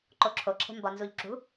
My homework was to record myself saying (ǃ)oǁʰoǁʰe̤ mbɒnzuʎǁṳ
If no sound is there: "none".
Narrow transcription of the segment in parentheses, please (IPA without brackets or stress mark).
ǃ